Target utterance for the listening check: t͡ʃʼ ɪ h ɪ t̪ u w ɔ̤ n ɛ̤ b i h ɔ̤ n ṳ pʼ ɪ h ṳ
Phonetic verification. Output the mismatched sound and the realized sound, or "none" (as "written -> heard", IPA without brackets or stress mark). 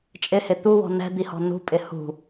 b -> d̪